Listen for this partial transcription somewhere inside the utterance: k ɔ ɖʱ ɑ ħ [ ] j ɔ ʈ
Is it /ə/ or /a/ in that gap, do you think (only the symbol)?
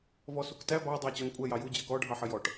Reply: ə